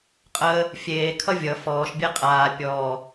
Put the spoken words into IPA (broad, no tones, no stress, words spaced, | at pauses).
qʼəː | fʲeːkʰʌ vʲʌ fɔːʃbʲe qʼaː pʲɔː